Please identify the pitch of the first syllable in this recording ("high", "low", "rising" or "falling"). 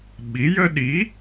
rising